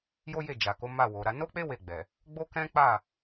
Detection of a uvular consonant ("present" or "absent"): absent